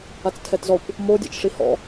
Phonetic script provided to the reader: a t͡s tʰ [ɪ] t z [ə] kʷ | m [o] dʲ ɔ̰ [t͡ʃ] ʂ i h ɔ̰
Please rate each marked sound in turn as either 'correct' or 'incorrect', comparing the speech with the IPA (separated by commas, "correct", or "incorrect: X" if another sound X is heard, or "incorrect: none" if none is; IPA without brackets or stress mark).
incorrect: ɛ, incorrect: ɔ, correct, correct